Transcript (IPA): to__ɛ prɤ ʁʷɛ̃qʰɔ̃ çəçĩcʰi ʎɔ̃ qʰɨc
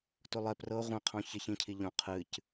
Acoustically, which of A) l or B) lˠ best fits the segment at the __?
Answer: B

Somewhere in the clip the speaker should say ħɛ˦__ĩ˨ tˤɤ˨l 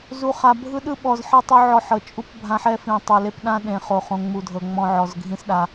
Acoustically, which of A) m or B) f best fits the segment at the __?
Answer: B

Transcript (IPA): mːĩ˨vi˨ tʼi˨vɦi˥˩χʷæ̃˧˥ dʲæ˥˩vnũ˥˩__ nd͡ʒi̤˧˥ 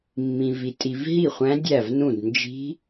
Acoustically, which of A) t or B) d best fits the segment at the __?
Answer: B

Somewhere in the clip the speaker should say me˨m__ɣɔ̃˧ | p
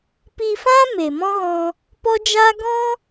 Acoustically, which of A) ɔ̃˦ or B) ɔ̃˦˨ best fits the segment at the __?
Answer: A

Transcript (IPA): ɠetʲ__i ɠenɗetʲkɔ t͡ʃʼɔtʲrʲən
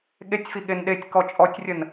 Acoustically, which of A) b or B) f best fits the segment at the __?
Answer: B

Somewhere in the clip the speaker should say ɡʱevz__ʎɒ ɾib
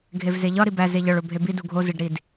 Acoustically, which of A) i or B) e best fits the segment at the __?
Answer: B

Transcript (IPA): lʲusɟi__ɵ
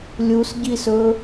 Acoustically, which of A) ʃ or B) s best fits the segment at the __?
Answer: B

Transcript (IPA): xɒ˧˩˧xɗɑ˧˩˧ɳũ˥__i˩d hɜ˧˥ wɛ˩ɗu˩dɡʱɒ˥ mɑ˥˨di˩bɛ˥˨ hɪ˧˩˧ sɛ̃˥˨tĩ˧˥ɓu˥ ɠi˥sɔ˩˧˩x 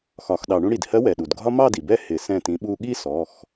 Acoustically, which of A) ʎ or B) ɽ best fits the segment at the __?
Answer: B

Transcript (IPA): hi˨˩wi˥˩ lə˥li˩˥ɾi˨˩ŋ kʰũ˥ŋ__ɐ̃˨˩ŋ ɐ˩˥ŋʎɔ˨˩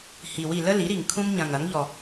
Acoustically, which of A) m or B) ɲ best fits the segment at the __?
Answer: B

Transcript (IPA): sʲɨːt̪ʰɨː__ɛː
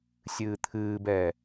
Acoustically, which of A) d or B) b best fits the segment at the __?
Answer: B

